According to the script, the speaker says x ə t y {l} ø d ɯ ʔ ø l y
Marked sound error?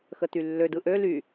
yes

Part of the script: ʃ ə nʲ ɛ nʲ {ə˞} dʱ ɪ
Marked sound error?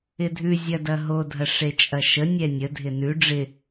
yes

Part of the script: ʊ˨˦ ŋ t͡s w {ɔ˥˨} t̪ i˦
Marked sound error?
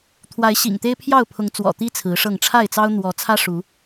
yes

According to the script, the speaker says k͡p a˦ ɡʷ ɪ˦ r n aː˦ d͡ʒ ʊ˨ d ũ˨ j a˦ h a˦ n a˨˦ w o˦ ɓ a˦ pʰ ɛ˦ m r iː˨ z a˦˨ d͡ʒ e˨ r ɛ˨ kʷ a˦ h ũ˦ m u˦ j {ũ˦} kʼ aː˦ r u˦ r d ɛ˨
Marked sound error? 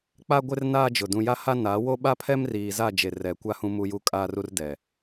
yes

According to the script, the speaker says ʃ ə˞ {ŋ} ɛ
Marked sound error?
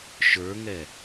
no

